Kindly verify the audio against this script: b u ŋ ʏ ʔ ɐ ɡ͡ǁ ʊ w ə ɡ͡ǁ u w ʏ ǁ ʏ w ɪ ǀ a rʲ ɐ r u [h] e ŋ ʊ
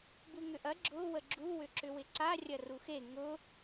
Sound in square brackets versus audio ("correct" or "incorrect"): incorrect